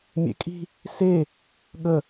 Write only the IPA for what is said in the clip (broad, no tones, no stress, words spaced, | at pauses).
mʲḛkʼi̤ | se | ɠə